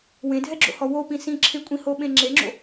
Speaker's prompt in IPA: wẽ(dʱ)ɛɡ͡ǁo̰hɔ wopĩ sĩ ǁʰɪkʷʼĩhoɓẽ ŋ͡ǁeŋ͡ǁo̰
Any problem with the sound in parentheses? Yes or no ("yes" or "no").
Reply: no